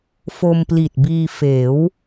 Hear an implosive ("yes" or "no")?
no